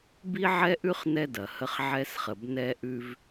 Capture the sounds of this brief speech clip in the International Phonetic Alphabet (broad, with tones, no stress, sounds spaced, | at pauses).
b i˦ ʕ ɛ˦ ʔ ʉ˦ χ n ɛ˦ d ɐ˨ h ə˦ χ ʕ ɛ˦ s χ ə˨ b n ɛ˦ ʔ ʉ˦ v